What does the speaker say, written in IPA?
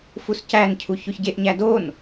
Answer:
fuscæncʰu çoçɟeʔɲæ don

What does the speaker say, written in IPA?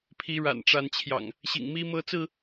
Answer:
pʰi˨˦ɻa̰˨˩nʈ͡ʂa˨˦nt͡ɕʰjɑ̰˨˩ŋ | ɕḭ˨˩ŋmi˦mɤ˦t͡sɹ̩˥˨

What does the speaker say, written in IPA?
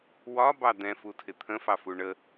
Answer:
wɒbɑ d̪ɛ̃futʰɪ t̪ʰə̃fɑfu ɳə

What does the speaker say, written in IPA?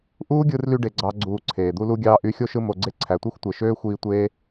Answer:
ʔuː˦ɡʲɯ˧rly˧ ɖe˦ɡ͡ǀɑ˦ɡ͡ǀuː˧ǀʰeː˨ d̪u˧lu˧ɡʲɑː˧ ʔy˨˦xʲo˧ʃɯ˧ mo˧ɡ͡ǀe˦ ǀʰæ˨tʷɯ˧xʷtʷe˨ ʃøː˦xʷiː˧ tʷeː˦

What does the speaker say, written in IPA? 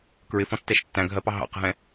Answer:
kɹɪfɔ̃tːɛʃ tːæ̃ɡʱɜpɑ ɦɑ̰qɦɛ̃

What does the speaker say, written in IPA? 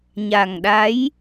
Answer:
ɲa˨˩ŋɗa˨˦j

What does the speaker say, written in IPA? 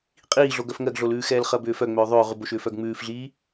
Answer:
qʼiːɮoɡœf ŋɜɡɮolʉːxɛːl χɜbʏːfœŋ͡mʏː ðˤʏːʁʉbo ʃʏːfœɡŋ͡mʉːfɮiː

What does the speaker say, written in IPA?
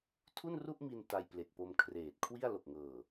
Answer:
tʰu˥˩nru˥˩ʔmi˧n ta˧jple˨˩k̚po˧m kʰreː˨˩t̚kʰwi˥˩a̯ lo˨˩k̚ŋɤː˨˩

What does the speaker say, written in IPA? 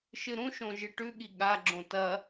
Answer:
ʃɨɾũʃõ ʒɨʈʉɠi ɠaɡ͡ǁõ tɐ

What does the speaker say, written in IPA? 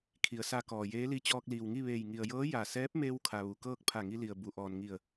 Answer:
kʰi˩˧ə̯sa˧kɔː˩ jeː˧˥li˧˥ t͡ɕɔː˧k̚liː˩wŋi˥˨ʋeː˧˩j ŋi˩ə̯jɤː˧˥ ja˧˩ sɛː˧˥p̚meː˧wkʰa˩ ʋu˩kɤː˥˨k̚ pʰa˧˩ŋi˧li˩ə̯ bu˩ʔɔː˩nŋi˧˩ə̯

